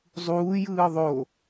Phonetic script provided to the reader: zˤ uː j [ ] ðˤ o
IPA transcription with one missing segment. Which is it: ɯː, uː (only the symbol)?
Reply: ɯː